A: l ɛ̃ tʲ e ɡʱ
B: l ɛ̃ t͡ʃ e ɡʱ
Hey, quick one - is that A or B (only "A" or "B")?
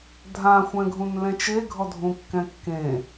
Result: B